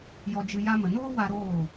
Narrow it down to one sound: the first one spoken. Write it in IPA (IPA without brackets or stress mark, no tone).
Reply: j